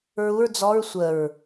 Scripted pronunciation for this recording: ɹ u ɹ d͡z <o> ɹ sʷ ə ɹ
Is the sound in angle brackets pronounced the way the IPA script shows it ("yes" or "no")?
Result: no